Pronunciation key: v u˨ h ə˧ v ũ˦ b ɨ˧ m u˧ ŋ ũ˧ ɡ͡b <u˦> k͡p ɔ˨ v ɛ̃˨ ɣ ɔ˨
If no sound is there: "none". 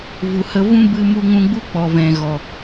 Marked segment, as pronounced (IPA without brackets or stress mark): u˦